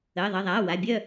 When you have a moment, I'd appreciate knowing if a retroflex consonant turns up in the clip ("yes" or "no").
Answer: no